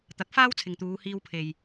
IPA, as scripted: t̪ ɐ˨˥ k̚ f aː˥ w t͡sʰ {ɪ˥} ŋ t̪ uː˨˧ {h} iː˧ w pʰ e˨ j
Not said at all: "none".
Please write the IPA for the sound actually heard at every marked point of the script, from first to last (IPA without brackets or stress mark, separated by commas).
ɪ˨, h